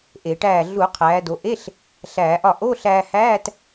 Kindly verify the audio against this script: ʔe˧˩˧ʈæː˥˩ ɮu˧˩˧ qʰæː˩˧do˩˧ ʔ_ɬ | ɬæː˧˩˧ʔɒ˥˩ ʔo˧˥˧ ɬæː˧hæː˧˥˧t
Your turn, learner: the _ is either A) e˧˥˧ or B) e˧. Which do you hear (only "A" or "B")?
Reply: A